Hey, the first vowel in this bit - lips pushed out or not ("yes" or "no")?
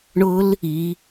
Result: yes